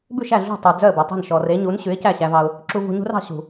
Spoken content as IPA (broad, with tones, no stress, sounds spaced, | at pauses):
b ʉ˥˩ ʃ æ˥˩ ɮ ṳ˥˩ tˤ ʉ˩ d͡z œ˥˩ ə̯ b œ˩ tˤ e̤˥˩ n ʃ ɔ˩ r e˩˥ ɲ u˩˥ n ɕ ʉ˩˥ ɪ̯ c æ˥˩ ɕ æ˧ v ɑ˧ ʊ̯ | ǁ u˧ v ṳ˧ ɲ ṳ˥ r ɑ̤˧ ɕ ṳ˩